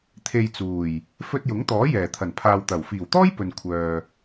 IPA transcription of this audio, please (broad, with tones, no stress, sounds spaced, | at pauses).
t̪ʰ e˨ j t͡s uː˨˩ j | f ɵ˧ t̚ j ʊ˨˥ ŋ t̪ ɔː˨˥ j ɛː˨˩ t̪ʰ ɐ˨˩ n pʰ aː˨ w t̪ ɐ˨˩ w f iː˨˩ w t̪ ɔː˥ j p ɵ˨ n kʷʰ œː˨